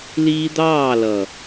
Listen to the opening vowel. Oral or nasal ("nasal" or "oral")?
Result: oral